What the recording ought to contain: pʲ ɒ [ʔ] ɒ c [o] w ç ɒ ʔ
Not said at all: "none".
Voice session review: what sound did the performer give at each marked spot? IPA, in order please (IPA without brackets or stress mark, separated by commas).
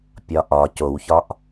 ʔ, o